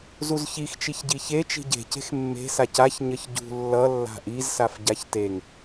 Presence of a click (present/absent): absent